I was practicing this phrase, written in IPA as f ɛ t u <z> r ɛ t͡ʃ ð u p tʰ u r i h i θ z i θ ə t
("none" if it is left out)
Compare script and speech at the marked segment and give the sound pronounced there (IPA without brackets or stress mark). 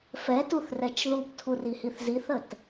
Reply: θ